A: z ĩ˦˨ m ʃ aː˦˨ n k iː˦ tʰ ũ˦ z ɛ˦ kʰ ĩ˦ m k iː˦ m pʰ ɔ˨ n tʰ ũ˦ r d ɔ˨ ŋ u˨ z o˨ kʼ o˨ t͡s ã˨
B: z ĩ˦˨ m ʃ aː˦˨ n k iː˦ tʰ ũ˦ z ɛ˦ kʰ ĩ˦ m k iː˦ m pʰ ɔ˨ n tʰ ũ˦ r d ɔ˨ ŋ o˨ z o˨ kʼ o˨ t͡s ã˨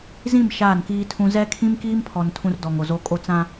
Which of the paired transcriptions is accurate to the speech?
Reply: B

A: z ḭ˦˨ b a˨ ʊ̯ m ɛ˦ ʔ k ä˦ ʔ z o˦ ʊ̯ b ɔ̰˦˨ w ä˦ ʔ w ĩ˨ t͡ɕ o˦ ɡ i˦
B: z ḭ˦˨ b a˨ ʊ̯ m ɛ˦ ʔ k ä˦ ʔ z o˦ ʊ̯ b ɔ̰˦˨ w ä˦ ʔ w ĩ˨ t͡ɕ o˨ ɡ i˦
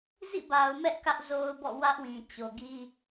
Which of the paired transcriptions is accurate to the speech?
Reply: B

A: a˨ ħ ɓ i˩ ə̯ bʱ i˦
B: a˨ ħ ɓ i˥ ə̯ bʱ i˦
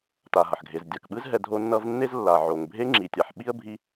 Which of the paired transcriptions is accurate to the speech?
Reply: B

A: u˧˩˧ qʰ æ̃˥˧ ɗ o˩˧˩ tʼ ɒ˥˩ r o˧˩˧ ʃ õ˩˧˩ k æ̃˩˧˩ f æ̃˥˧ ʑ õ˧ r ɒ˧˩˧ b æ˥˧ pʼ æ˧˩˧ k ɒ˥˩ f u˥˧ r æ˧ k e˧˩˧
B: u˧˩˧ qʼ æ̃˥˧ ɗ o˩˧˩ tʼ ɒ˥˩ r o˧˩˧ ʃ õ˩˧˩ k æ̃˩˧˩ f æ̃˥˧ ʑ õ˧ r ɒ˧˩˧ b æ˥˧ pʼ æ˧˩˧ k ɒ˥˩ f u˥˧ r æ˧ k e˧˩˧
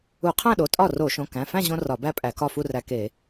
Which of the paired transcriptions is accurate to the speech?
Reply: A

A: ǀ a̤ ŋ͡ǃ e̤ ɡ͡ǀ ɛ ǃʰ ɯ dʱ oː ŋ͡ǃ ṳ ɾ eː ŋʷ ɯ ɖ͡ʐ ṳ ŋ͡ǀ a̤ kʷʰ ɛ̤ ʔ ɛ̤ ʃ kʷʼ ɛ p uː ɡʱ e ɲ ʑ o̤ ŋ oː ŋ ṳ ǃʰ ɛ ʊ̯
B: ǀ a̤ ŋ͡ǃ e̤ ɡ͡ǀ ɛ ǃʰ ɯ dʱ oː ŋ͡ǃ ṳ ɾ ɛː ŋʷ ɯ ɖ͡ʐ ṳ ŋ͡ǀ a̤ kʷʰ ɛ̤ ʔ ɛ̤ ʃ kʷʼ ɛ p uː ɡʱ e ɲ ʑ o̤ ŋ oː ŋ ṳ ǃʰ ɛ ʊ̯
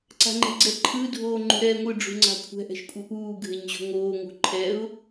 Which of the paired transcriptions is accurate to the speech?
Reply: B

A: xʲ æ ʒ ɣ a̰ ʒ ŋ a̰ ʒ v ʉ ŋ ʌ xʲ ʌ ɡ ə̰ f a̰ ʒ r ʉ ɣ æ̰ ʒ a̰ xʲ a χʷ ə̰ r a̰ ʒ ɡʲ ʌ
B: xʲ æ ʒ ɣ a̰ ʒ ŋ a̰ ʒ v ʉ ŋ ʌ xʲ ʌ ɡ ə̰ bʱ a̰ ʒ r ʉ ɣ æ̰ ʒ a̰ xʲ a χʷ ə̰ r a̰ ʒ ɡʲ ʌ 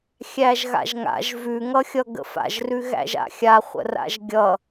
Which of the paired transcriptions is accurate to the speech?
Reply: A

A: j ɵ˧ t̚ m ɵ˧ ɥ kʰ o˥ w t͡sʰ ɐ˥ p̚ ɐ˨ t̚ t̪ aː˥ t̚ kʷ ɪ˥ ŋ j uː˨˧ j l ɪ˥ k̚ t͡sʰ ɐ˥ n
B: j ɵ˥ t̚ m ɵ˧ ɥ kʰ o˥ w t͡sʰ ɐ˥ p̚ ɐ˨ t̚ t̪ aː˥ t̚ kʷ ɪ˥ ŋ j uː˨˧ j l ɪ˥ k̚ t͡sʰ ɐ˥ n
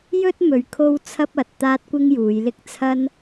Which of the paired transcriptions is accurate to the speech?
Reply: B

